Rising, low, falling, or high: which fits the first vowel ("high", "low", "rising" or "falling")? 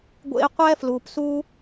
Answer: high